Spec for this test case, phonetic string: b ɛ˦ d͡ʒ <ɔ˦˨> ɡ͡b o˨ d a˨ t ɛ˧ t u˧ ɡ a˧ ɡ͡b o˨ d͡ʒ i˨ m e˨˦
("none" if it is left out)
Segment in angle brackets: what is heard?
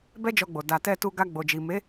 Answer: ɔ˧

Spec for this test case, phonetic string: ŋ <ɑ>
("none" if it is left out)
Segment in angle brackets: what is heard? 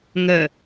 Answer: ə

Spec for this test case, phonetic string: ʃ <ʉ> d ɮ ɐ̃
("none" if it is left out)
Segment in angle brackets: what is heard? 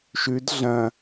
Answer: ʉ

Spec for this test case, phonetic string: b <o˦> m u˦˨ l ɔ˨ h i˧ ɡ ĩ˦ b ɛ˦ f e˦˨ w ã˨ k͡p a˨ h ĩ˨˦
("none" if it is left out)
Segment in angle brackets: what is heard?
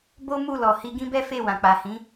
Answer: o˦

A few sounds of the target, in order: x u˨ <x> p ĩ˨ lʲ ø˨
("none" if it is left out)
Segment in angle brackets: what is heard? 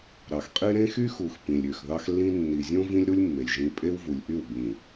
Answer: x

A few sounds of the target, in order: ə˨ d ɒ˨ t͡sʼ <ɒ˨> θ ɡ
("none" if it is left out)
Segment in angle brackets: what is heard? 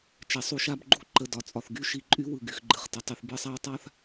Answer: ɒ˨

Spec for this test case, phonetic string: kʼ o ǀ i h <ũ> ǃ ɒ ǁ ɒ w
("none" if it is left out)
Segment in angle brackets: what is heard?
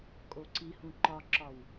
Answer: ũ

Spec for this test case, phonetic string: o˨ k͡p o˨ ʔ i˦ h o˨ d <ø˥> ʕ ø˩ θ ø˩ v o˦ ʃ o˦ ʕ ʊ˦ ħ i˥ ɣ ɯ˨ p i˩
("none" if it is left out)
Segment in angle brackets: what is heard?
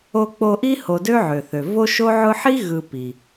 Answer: ø˦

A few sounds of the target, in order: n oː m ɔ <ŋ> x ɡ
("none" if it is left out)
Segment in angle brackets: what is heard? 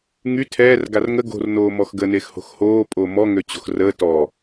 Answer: none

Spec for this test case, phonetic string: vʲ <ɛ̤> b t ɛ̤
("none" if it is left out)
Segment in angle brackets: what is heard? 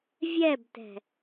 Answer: ɛ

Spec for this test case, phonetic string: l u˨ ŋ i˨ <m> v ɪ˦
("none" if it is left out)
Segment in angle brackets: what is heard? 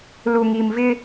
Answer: m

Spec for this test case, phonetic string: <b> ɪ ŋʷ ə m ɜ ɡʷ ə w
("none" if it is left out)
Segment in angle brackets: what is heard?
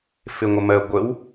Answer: f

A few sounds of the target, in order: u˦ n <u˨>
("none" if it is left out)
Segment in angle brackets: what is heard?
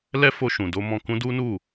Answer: u˦˨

